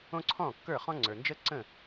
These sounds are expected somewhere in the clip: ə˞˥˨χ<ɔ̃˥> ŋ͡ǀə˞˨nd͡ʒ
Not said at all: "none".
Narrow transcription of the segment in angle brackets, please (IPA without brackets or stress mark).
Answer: ɔ̃˥